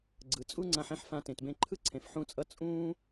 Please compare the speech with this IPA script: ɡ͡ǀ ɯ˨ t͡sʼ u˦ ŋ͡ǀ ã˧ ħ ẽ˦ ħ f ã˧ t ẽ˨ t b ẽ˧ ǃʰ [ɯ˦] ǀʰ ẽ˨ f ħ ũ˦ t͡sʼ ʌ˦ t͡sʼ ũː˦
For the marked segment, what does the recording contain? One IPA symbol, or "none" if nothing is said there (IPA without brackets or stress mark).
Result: ɯ˦